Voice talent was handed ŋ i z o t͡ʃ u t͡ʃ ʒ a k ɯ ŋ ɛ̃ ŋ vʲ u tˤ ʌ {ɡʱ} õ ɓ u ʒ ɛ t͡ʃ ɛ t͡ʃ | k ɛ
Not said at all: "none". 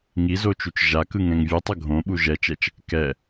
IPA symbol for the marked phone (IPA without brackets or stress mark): ɡʱ